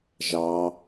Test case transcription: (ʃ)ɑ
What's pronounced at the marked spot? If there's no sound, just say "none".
ʒ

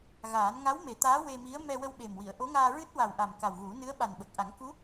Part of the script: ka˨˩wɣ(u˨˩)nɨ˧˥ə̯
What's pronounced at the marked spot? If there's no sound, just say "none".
u˨˩˦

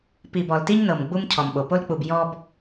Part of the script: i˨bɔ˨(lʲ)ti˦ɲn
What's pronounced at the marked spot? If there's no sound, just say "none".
l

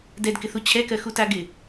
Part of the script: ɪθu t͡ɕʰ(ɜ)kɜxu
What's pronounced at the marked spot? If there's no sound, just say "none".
ɛ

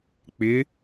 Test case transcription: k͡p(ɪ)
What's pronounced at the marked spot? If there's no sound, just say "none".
ɪ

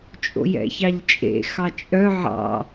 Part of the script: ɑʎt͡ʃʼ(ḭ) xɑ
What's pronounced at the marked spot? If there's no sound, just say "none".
ḛ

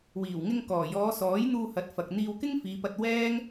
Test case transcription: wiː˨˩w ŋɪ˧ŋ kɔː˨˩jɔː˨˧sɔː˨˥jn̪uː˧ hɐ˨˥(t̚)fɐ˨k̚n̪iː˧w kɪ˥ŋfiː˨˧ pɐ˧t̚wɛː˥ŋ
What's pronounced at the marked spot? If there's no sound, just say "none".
t̚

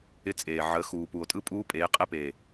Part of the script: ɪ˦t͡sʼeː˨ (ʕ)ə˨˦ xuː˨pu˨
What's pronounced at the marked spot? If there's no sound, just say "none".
ʕ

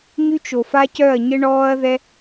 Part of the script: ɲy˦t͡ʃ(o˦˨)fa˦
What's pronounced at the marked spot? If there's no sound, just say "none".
o˨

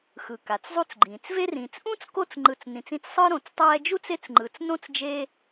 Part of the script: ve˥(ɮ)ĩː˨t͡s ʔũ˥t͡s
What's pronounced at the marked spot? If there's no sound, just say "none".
r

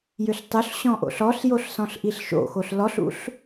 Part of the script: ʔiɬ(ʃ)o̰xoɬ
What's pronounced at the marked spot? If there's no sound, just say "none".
ʃ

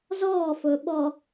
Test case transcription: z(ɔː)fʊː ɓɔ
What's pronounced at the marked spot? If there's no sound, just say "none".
ɔː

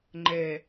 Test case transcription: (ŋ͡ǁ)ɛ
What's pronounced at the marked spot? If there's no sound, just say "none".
ŋ͡ǃ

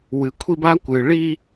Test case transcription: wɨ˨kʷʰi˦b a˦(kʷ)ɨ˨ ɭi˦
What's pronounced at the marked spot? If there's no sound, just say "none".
kʷ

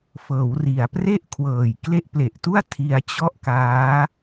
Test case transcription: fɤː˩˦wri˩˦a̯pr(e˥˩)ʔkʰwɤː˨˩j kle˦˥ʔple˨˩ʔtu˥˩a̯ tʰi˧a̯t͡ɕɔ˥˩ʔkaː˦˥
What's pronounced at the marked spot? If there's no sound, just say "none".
e˥˩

